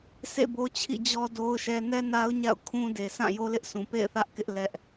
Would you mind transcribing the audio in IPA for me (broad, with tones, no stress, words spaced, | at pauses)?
sʰḛ˦˨bo˦t͡ɕʰḭ˦˨d͡ʑɔ˦ do˦ʊ̯ʃɛ˦ nɛ˦na˦ʊ̯ ɲa̰˦˨ʊ̯kʰũ˦de˨sã˦˨ jo˦lɪ˦ʔsʰũ˨ pḛ˦˨ɪ̯θä˦ʔkɪ˦ʔ lɛ˦ʔ